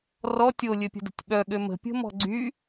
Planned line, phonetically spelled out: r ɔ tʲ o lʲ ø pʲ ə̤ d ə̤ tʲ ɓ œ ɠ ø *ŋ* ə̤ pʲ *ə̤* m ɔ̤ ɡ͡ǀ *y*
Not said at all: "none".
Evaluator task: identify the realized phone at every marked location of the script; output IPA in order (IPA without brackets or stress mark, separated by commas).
m, ə̤, y